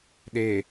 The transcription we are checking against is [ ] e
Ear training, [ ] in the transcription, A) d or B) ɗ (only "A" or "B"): B